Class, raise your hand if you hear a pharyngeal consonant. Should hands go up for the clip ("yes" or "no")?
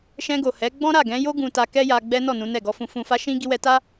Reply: no